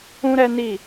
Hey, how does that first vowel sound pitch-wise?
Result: high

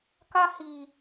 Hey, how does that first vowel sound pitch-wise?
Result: high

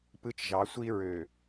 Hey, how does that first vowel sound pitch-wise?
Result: high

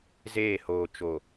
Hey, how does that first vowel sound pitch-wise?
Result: falling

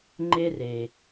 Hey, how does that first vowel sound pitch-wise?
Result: high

